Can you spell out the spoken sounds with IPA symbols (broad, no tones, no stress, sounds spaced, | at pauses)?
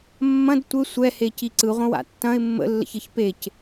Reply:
mː ɐ̃ d tʷ ɘ sʷ ɛ h e c i ǀ ɯ ʁʷ ə̃ w a̰ tː ɐ̃ ɪ̯ mː ə̰ lː ə̰ ç ɘ ç p e c